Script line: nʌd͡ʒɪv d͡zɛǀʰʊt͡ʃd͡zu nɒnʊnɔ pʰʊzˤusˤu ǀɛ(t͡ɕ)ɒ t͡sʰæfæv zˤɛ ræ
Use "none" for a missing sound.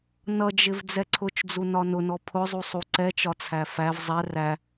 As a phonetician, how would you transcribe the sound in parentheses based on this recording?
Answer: t͡ʃ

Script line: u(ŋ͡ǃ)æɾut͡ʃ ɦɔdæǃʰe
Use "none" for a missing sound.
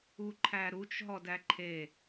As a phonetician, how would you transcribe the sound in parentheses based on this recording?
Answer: ǃʰ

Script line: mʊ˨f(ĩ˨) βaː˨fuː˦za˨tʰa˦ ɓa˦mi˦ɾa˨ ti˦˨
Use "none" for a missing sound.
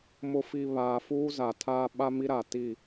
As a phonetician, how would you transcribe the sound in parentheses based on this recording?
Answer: i˨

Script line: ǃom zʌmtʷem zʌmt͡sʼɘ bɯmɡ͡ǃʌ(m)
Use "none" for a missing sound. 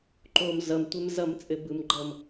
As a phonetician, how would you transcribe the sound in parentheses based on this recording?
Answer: m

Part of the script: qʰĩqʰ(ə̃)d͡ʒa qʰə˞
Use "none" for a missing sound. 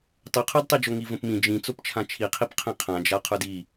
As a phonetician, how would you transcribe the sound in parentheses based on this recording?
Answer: ã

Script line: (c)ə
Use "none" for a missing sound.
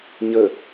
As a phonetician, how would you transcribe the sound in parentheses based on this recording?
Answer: ɲ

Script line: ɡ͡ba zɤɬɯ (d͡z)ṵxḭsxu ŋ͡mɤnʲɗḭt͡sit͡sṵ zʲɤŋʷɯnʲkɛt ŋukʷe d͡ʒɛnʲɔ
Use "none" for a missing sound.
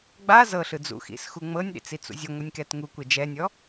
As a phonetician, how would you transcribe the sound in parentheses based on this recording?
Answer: d͡z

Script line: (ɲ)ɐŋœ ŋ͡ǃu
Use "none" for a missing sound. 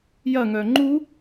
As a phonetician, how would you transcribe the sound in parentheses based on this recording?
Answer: j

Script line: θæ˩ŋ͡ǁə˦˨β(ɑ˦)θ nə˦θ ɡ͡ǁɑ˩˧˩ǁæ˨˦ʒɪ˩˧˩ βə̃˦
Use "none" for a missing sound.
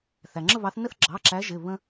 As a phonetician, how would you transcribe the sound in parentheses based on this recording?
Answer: ɑ˨˦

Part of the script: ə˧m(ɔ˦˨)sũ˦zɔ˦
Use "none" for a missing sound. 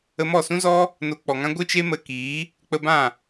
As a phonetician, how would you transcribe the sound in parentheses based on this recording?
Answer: ɔ˦˨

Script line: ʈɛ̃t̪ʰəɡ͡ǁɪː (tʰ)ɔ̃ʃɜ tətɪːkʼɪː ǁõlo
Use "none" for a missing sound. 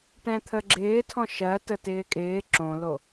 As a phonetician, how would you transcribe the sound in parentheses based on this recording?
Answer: tʰ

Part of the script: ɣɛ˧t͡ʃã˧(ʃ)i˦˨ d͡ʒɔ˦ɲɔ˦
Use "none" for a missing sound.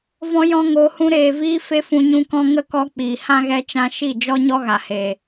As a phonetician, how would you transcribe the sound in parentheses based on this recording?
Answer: ʃ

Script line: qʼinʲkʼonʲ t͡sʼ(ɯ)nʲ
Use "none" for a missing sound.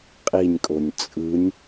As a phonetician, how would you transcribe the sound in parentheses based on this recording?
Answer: ɯ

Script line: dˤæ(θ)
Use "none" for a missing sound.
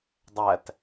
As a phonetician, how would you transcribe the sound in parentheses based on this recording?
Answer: t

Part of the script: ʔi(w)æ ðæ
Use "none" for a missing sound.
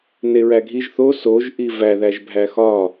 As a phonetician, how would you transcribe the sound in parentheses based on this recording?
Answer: v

